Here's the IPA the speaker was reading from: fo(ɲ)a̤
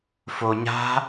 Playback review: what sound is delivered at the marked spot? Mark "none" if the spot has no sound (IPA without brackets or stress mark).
ɲ